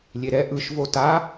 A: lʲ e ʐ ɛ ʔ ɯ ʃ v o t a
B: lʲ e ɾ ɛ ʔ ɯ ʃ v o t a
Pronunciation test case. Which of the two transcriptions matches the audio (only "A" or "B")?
B